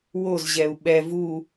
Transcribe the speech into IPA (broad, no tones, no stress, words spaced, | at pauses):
wozʑɛu̯ ɓɛ vu